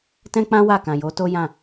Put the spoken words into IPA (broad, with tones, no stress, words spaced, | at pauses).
tɛ̃˦k͡pã˦ wa˦˨kã˨jo˨˦ to˦jã˦˨